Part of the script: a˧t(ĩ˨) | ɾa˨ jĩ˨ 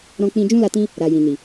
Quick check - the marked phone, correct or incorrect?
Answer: incorrect